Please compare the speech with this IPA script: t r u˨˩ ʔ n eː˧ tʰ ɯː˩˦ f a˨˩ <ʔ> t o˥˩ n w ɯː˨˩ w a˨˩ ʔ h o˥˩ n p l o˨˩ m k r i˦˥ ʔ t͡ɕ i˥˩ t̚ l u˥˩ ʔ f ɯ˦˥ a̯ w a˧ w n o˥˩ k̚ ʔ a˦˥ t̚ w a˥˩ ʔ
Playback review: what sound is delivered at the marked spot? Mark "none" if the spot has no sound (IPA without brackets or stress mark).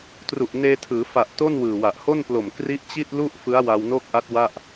ʔ